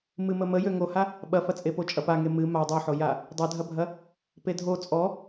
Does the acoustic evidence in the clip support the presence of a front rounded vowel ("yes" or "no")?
yes